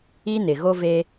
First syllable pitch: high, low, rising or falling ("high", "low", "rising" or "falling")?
high